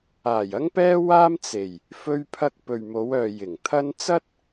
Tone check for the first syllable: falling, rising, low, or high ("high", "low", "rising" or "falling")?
low